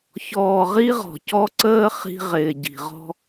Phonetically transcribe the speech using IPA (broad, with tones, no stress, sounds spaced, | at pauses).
ç ɔː˨ ʁ i˦ ʁ ɔ̤˨ c ɔ˦ ǀ əː˦ χ i̤˦ ʁ ɪː˨ ɟ i̤˨ ʁ ɔ̤˦